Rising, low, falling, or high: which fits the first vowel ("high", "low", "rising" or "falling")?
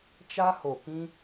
high